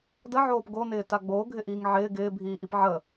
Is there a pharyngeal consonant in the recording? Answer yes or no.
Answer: yes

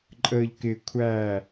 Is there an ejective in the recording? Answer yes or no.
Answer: yes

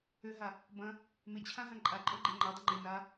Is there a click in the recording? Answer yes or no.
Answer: yes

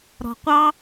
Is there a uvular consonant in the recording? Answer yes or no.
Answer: yes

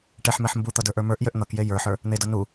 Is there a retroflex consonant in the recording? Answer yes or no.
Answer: yes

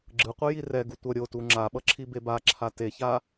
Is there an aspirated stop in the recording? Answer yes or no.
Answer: yes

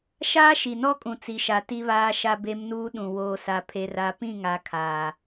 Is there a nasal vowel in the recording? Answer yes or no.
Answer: yes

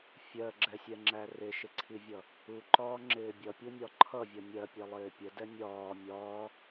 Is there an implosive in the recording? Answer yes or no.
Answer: no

